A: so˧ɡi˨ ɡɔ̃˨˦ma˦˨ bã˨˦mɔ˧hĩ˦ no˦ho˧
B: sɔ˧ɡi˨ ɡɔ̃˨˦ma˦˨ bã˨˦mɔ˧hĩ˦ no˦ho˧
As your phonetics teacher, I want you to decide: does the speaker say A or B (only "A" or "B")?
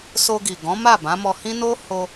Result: A